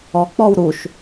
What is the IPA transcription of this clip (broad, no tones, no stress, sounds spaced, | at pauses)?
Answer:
ɔ k͡p ɔ w ɾ u ʃ